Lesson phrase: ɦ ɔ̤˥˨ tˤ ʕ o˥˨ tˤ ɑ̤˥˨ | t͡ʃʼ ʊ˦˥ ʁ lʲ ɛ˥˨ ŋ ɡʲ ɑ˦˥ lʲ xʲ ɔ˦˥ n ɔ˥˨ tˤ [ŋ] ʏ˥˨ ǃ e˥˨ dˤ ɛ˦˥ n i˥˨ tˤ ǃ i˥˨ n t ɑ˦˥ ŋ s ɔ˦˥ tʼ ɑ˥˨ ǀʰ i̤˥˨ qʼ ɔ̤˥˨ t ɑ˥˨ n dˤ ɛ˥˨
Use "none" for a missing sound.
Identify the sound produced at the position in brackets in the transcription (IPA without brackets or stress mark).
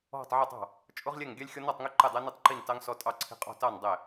ŋ